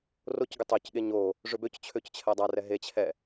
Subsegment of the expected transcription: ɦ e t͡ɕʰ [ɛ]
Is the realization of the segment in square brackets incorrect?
no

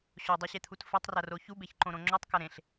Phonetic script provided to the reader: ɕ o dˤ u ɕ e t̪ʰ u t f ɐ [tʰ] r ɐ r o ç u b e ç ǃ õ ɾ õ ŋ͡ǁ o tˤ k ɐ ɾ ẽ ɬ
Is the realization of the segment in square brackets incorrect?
yes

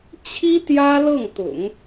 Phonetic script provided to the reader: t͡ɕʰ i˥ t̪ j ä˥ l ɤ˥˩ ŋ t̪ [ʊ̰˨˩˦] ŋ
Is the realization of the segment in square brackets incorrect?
no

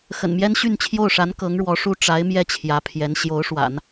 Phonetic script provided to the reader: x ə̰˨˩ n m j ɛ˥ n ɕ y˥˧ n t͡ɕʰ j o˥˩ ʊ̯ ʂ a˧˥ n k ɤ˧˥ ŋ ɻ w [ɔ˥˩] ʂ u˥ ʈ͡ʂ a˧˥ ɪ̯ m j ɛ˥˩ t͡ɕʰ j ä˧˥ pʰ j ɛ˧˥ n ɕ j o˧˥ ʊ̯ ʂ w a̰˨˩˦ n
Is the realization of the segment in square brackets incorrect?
yes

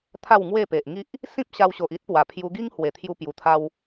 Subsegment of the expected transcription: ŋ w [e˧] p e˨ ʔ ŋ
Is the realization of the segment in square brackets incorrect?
yes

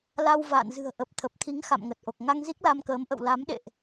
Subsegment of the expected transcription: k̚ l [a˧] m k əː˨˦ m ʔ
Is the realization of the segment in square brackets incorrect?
no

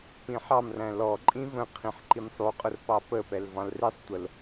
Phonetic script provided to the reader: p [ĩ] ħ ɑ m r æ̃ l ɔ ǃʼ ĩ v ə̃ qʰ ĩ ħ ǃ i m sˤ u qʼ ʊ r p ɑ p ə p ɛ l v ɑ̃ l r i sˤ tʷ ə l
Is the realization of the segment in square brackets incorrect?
no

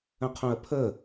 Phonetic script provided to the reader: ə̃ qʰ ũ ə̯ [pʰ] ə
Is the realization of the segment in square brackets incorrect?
no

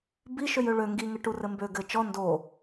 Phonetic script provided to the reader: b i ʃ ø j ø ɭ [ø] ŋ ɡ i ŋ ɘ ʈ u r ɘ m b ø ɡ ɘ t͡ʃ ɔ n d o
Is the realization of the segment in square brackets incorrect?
no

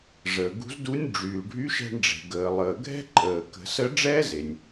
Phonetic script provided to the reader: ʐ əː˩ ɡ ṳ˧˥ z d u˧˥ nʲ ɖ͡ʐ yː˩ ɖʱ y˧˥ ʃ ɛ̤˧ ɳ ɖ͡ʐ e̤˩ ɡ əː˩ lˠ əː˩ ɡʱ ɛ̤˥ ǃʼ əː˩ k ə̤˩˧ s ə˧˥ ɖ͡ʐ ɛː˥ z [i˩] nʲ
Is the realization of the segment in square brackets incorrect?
yes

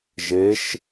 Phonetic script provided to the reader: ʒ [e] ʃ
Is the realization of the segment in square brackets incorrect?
no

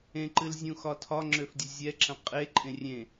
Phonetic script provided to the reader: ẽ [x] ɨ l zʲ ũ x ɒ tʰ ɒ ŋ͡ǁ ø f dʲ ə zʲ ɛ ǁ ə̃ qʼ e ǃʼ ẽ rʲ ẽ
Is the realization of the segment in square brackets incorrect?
yes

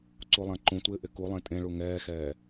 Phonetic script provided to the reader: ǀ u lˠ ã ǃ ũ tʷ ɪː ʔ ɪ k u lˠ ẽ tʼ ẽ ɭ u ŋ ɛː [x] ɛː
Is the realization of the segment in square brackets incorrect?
no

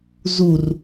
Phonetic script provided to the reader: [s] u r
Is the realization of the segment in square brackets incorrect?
yes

